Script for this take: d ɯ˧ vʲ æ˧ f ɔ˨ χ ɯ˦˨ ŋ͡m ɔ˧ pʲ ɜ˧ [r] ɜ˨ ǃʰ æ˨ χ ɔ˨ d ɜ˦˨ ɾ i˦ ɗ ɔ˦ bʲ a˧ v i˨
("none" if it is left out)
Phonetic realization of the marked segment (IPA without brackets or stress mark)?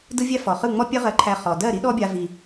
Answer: ʁ